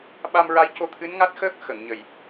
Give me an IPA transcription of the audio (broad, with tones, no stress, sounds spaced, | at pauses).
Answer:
ɓ a˧ m ɹ a˧˥ j c o˧ t̪ʰ ɨ˧˥ n ŋ a˦˥ t̚ x əː˦˥ k̚ x ə˨˩˨ ŋ ɲ ə˨˩ j